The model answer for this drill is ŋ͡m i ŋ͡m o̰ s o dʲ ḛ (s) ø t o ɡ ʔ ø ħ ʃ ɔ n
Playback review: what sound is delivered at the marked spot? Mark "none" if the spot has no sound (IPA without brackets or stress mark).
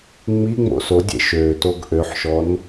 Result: ʃ